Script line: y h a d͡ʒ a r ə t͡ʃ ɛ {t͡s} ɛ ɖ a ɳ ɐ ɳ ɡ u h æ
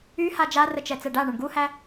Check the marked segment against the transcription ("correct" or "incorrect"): correct